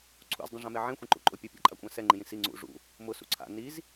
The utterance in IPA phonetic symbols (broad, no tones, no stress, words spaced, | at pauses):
ǀʰṵzdˤĩʐãme ʕẽxʷĩǃṵ ǃʼʊ pʲʊpʲa̰ǃʼakʷʼã sɛŋ͡ǃĩjĩ si ŋ͡ǀṵ ʐṵ | mʊsṵ ǀʰa̰ niz